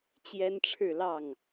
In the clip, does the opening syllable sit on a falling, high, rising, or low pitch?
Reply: high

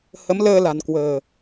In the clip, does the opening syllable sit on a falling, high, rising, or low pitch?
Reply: rising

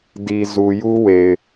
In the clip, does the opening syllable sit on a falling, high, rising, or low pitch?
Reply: low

